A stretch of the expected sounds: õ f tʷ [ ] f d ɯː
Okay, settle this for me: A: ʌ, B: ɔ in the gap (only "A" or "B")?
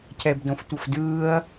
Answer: A